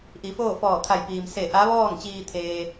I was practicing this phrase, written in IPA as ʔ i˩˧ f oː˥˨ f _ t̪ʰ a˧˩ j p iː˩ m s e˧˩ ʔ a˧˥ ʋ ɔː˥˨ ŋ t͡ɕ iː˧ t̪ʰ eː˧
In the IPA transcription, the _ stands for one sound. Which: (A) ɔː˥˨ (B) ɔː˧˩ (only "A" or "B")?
B